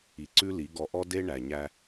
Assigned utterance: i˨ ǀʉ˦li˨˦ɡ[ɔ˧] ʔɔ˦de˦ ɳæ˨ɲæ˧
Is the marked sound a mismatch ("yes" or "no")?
no